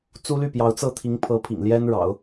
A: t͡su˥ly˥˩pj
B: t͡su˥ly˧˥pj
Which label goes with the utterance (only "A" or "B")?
A